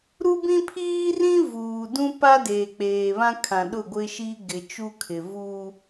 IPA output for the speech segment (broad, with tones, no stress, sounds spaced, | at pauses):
ɾ u˦ b ĩ˦ pʰ iː˦ r ĩ˦ v uː˨ d ũ˦ p a˦ d eː˨ k͡p eː˨ β ã˦ kʰ ã˨ ɗ ʊ˦˨ ɡʷ ɪ˦ ʃ i˦ ɡ ɪ˨ t͡ʃ u˦ kʰ ɪ˨ v u˦